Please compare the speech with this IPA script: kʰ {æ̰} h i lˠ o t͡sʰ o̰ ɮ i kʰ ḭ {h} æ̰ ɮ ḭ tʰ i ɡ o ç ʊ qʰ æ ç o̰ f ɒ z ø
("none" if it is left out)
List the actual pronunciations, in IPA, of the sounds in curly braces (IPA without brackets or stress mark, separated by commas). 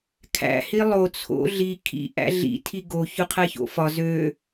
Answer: æ̰, ʔ